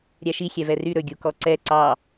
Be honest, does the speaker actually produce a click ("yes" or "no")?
yes